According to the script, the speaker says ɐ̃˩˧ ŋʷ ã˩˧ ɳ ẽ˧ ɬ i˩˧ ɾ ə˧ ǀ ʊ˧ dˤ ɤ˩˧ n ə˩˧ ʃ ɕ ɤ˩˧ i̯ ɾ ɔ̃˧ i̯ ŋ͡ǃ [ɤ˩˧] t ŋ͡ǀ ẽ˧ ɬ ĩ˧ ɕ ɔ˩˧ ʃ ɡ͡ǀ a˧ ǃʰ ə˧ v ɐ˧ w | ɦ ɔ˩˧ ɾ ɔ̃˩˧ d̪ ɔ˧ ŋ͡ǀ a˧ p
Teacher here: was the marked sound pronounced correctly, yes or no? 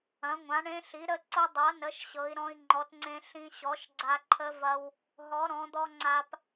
no